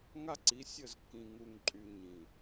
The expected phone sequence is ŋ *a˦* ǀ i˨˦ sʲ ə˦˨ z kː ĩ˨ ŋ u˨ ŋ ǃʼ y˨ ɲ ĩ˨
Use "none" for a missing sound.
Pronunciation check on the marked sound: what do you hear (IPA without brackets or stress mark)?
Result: a˦